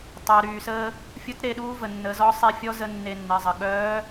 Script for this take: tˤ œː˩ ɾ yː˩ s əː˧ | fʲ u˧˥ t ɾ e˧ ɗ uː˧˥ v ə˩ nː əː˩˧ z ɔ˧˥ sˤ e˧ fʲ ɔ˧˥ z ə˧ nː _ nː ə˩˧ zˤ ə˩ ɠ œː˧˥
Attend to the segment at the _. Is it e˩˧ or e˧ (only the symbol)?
e˧